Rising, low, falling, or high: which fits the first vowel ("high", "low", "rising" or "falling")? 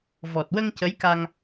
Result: low